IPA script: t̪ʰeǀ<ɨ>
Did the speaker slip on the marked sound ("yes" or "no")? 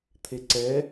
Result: yes